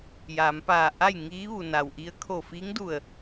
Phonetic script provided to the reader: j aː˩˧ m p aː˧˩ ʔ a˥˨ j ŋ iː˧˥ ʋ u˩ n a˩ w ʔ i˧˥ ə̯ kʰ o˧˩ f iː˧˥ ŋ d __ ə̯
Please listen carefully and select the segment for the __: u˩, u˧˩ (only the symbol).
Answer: u˧˩